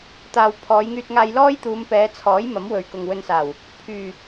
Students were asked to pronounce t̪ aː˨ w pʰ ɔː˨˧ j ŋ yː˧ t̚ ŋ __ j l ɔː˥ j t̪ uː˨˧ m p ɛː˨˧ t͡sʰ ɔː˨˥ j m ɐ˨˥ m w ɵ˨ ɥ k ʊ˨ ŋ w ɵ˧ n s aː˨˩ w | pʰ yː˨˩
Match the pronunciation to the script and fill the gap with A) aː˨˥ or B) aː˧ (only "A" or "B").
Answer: B